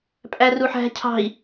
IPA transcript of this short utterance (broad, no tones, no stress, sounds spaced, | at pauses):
pʼ æ r u ħ æ̤ cʰ ɑ̤ i̯